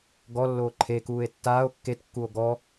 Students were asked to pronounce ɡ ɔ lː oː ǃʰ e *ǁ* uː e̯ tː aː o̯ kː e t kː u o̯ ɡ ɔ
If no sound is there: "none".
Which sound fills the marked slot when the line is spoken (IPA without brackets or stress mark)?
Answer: k